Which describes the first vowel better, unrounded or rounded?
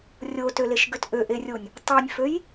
rounded